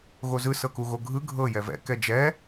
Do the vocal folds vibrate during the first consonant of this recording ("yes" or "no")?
yes